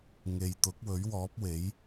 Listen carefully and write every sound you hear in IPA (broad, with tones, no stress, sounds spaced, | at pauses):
ŋ e˨ j t̪ ʊ˨˥ k̚ w ɵ˨˥ ɥ w ɔː˨˥ p̚ w e˨˥ j